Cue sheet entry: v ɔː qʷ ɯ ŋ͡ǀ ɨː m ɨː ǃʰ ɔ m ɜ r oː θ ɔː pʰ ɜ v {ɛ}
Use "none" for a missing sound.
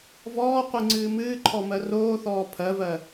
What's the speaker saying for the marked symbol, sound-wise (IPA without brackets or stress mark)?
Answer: ɜ